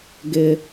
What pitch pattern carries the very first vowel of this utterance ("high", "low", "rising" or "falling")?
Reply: high